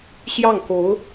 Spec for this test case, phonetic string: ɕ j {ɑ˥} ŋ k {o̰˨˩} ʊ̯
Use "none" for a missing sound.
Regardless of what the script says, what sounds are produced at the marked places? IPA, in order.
ɑ˥˩, o˧˥

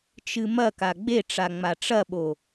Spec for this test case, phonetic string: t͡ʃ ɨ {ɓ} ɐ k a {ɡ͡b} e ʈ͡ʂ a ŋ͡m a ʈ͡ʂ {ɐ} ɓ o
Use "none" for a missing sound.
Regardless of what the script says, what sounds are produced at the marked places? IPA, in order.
m, ɡ͡b, ɐ

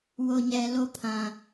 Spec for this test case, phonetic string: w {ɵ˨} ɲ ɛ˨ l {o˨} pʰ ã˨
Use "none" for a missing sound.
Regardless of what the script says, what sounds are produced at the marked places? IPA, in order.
o˨, o˦

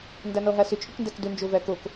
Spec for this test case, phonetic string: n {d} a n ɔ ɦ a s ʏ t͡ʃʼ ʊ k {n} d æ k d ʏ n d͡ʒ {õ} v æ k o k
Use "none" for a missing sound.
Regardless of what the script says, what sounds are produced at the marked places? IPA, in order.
d, n, o

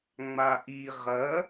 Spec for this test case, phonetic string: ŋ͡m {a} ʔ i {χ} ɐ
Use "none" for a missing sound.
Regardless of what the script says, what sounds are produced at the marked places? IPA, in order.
a, ʁ

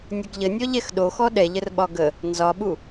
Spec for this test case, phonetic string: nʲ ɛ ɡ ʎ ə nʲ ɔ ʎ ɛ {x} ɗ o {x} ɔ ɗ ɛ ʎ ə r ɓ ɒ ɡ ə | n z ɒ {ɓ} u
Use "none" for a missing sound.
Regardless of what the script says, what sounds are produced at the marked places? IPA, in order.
x, x, ɓ

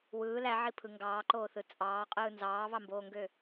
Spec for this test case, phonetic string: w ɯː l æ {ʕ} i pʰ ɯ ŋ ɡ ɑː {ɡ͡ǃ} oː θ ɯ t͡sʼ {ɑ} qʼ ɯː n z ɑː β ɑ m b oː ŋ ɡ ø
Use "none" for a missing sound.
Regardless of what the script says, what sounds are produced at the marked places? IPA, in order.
ʕ, ǃ, ɑː

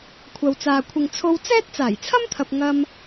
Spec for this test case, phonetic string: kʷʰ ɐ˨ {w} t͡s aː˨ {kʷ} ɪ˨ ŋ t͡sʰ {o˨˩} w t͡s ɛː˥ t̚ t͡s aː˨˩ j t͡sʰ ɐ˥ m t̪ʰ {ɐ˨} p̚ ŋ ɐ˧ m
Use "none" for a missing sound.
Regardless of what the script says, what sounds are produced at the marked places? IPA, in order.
w, kʷʰ, o˧, ɐ˨

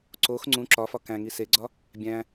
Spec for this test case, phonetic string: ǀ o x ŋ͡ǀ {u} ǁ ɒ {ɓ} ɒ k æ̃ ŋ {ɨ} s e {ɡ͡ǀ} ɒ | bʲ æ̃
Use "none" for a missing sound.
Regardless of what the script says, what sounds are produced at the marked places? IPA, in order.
ũ, f, i, ɡ͡ǀ

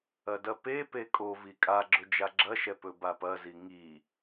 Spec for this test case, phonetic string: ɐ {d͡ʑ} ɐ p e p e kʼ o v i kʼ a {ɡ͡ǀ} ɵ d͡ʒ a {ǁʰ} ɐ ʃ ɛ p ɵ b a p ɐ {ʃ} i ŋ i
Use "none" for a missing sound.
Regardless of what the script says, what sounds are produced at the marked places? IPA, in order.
d, ɡ͡ǁ, ɡ͡ǁ, z

